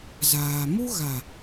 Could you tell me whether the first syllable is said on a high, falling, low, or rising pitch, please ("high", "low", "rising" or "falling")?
low